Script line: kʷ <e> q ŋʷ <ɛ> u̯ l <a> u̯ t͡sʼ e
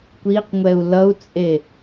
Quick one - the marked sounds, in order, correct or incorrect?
incorrect: i, correct, incorrect: ʌ

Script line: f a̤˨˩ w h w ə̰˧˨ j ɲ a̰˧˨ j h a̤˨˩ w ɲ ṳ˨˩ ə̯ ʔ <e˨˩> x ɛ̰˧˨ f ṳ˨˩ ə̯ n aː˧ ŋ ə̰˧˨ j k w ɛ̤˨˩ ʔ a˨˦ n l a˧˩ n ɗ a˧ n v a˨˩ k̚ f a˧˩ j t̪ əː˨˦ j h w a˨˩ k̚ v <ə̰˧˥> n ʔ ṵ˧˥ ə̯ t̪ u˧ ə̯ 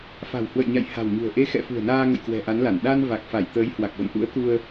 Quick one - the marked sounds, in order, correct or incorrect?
incorrect: e˧, incorrect: ə̰˧˨

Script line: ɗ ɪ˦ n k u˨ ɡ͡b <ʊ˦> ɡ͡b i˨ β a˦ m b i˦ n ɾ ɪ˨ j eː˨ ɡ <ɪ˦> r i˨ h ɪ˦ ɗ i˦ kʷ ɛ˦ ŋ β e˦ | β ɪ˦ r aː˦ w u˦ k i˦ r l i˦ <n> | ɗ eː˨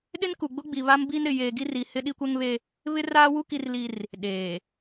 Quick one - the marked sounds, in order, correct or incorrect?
correct, incorrect: i˦, incorrect: r

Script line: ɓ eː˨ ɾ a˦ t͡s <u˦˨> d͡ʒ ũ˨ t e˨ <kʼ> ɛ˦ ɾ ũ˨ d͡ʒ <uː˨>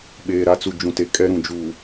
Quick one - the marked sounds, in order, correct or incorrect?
incorrect: u˨, correct, correct

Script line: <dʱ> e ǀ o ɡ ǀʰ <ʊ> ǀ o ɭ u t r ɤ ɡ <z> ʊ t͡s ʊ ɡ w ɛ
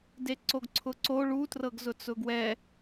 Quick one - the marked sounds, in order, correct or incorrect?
incorrect: d, correct, correct

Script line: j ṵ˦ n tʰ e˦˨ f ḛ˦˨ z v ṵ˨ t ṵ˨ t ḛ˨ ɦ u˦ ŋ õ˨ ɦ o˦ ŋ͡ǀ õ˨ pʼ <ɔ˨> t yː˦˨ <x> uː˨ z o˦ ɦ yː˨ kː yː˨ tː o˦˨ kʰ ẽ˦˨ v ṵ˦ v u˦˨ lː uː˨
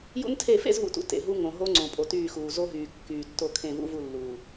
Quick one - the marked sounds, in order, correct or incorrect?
incorrect: o˨, correct

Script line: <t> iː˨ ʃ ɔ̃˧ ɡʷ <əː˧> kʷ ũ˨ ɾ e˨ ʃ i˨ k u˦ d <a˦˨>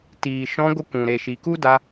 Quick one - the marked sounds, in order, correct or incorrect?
correct, incorrect: ə˧, incorrect: a˧

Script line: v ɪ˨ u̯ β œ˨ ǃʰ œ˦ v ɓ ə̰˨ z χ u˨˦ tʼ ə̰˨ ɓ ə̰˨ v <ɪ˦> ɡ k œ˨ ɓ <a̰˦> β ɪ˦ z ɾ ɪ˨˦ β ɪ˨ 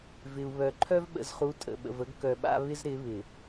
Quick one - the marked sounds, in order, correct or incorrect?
incorrect: ə˦, correct

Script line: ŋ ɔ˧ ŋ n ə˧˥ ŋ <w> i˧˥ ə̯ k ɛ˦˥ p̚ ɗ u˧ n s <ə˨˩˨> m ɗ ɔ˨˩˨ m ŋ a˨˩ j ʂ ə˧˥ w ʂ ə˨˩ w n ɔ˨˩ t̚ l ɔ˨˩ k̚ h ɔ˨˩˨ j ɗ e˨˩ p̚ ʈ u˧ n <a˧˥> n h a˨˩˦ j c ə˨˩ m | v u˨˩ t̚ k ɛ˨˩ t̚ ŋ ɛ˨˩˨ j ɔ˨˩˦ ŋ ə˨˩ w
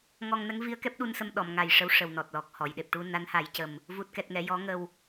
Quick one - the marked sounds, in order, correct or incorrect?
incorrect: v, incorrect: ə˧, correct

